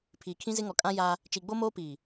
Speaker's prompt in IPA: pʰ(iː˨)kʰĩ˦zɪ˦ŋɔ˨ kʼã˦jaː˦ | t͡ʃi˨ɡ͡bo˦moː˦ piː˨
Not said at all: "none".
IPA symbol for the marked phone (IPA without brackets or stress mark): iː˨